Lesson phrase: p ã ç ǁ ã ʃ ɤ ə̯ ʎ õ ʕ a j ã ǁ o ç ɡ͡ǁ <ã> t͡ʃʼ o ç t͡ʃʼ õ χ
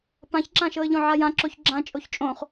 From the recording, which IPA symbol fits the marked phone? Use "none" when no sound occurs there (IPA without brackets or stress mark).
ã